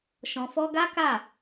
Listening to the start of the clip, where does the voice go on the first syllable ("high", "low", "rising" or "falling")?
low